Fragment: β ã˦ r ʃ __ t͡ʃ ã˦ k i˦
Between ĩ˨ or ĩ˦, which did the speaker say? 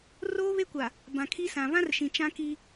ĩ˨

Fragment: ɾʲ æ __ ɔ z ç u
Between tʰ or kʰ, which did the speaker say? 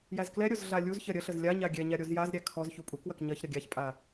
kʰ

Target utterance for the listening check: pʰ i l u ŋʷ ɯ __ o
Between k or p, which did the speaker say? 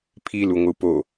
p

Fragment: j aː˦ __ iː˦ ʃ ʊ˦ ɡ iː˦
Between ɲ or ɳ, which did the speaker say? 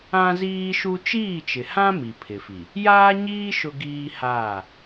ɲ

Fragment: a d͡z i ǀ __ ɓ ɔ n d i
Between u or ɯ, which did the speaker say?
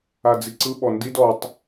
ɯ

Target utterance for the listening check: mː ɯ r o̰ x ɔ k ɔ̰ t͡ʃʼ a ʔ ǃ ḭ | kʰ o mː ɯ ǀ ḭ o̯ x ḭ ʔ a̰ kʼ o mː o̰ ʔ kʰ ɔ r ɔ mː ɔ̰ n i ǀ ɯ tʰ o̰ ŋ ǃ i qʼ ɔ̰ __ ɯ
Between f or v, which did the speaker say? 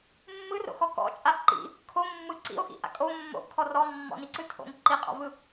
v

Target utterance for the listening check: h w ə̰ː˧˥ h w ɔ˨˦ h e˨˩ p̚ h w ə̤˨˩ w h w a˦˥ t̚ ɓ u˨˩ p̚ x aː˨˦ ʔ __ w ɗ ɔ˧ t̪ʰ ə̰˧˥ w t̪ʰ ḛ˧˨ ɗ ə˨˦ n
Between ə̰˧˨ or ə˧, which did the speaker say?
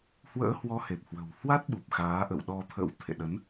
ə̰˧˨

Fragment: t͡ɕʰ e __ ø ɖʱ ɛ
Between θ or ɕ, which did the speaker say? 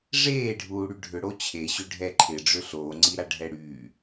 ɕ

